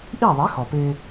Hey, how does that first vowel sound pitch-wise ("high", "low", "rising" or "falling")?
falling